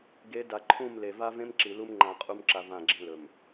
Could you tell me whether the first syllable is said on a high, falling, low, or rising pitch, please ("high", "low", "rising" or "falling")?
rising